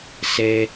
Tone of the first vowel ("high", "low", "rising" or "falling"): high